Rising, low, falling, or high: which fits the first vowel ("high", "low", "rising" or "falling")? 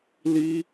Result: high